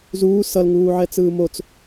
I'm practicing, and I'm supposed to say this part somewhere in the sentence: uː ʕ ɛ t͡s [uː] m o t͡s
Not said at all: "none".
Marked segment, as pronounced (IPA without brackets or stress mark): ɯː